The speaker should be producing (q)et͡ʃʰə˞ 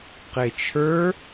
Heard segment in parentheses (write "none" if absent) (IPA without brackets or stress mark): q